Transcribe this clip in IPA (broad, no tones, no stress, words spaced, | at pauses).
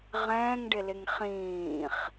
ʁɛ̃ːŋɖɪlɪŋ χĩːχ